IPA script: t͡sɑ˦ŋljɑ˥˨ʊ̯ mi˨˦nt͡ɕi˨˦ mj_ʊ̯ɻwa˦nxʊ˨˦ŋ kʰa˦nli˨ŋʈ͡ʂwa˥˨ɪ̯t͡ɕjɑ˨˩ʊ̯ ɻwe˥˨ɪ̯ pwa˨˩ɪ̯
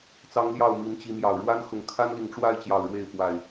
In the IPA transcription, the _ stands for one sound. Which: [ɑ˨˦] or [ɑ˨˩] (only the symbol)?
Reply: ɑ˨˩